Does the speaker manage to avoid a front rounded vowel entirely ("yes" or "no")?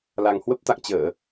yes